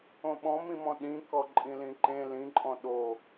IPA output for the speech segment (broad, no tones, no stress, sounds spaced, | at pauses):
õ ɓ ɔ̃ m ĩ m ɔ̃ ɗ ĩ k ɔ ǃʼ ĩ l ĩ ǃ ẽ l ĩ ǃʼ ɔ̃ ɗ o